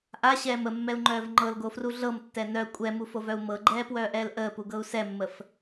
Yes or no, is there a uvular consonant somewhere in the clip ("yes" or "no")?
no